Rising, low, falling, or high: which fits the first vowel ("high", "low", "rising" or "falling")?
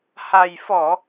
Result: low